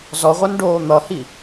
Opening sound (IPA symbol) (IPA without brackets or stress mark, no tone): z